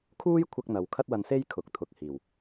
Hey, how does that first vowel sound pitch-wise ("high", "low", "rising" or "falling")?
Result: high